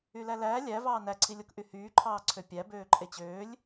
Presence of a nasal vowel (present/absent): absent